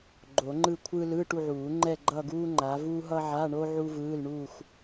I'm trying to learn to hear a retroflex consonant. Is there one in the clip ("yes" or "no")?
yes